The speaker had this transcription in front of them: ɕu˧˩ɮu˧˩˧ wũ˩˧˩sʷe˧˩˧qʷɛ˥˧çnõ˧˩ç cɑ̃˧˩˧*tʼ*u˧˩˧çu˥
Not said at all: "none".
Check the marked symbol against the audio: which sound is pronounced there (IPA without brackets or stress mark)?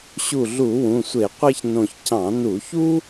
n